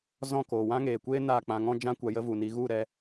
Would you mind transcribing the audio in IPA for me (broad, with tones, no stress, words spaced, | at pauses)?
zɔ̃˦˨koː˨wã˦ ŋeː˨kʷeː˦ naː˦˨k͡pã˧ŋɔ̃˦ d͡ʒã˦ kʷa˧jə˦vu˨ni˨˦ ɣu˦˨ɾɛ˧